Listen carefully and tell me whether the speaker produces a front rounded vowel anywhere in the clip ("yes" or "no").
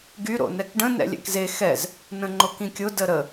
yes